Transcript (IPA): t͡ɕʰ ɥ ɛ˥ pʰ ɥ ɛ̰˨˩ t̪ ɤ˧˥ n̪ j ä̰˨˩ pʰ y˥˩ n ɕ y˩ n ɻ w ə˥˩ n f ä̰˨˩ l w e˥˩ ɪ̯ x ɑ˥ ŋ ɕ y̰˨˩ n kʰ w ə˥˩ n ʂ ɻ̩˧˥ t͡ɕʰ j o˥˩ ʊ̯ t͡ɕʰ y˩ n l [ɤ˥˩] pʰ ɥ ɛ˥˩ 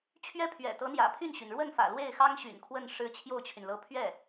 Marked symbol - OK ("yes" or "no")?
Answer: no